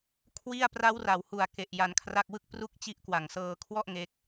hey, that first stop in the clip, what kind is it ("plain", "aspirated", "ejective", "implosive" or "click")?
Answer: aspirated